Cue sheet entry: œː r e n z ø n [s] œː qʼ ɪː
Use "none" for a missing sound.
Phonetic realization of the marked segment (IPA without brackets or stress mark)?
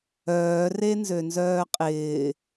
z